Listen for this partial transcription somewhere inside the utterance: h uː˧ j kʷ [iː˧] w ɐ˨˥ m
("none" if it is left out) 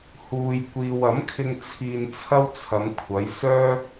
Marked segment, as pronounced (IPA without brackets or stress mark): iː˧